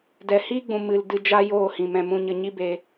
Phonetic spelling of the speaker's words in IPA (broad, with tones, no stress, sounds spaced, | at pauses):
d ɛ˨ h iː˦ ɡ͡b ũ˨ m ɨ˨ l d ɨ˧ d͡ʒ a˦ j oː˦˨ h ĩ˨ m ɛ̃˨ m ũ˧ ɲ ə˧ ɲ i˦ b e˧